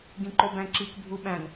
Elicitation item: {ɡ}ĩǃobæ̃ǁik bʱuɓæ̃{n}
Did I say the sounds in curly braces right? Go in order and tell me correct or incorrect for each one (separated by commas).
correct, correct